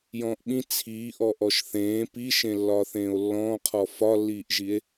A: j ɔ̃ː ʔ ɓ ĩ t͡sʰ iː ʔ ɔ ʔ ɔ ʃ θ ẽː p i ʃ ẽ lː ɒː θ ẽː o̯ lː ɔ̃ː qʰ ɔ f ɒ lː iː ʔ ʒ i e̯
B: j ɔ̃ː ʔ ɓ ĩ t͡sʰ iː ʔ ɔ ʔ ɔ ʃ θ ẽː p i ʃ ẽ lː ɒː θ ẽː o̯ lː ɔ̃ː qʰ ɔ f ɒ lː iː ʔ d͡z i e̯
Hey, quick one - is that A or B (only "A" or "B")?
A